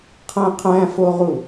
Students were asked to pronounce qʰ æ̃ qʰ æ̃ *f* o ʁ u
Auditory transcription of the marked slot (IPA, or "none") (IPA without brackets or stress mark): f